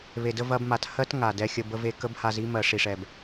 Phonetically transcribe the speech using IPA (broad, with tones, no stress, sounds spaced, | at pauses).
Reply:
β e˨ d ə˧ v ɐ˧ b m a˨ t h ɜ˦ t ŋ a˨ d ɛ˧ xʲ ə˧ b ə˧ v e˧ k ə˦ b h a˧ z i˦ m ɜ˨ ʂ i˨ ʂ ɛ˨ b